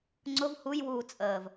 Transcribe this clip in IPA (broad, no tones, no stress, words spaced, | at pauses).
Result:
ŋ͡ǀʊv hujwuː t͡sʼəːv